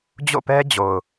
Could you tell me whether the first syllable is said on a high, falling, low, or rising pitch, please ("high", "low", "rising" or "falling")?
falling